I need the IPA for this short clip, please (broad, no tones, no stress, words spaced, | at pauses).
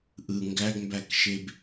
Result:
ʔɯ ŋɡæɡmbækʃeb